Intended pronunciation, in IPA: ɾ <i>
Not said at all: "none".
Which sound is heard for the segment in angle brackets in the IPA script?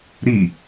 i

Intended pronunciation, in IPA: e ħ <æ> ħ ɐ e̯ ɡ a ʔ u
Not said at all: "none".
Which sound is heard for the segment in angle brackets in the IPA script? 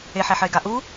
æ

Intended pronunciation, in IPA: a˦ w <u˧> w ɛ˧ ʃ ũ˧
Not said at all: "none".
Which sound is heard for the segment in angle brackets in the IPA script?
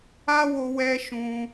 o˧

